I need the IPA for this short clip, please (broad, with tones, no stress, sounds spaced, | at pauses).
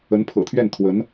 ə˧˥ n pʰ ɤ̰˨˩ t̪ʰ ɥ ɛ˥˩ n t̪ʰ w ə˧˥ n